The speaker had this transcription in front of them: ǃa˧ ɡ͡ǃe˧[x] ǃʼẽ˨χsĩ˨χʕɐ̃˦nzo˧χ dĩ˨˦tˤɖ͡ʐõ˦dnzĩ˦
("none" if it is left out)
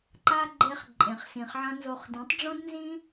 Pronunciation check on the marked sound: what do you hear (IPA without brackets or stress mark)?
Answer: χ